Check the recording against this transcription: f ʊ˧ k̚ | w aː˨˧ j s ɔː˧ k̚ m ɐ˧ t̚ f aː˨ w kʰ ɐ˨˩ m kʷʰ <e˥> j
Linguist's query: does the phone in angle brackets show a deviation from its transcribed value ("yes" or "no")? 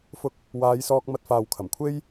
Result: no